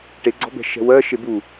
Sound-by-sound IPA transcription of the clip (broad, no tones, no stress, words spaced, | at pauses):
ʈeɡ͡ǀɔ̤bɛ̤ ʃɛ̤wɜ ʃebu